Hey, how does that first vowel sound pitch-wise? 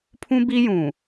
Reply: high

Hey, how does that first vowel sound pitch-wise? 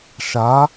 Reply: rising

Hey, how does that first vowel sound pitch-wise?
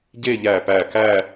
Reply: falling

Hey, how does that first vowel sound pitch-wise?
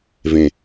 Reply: low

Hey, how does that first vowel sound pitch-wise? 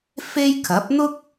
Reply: high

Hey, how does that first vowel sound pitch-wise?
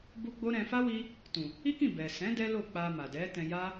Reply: high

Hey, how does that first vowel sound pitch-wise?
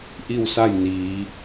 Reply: falling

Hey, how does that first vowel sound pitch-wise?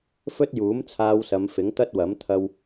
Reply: high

